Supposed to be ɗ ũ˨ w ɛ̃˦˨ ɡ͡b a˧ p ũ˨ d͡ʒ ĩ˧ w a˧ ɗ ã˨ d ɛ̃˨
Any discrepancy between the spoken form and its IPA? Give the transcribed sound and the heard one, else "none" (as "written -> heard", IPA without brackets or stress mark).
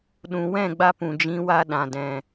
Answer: none